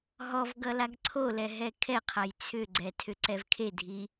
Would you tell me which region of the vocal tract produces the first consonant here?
throat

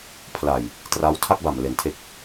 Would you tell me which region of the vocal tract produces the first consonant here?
lips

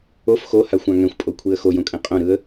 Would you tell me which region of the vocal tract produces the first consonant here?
lips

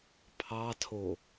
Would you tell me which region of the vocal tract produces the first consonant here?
lips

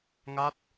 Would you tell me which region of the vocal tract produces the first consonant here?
velum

